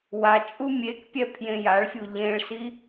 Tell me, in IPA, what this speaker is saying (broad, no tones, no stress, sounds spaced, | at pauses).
w a t͡ʃʼ u mʲ e k pʲ ɛ pʰ j ẽ j a ɭ fʲ u ʎ ẽ ɭ s i